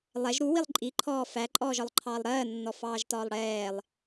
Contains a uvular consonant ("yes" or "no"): no